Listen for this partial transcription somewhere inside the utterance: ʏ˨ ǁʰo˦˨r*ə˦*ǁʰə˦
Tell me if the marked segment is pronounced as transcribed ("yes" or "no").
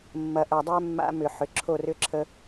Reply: no